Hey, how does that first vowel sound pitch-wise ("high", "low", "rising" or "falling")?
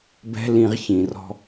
high